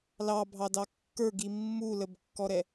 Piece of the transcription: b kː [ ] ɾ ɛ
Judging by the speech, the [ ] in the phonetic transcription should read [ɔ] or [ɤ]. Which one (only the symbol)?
ɔ